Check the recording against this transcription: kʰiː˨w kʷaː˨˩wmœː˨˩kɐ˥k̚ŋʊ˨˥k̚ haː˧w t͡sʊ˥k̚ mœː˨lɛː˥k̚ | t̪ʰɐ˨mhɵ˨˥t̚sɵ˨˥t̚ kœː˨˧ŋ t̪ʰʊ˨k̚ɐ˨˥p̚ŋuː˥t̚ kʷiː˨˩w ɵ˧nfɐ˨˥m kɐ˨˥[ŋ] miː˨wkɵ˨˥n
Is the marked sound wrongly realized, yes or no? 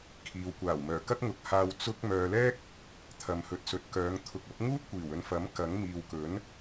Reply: no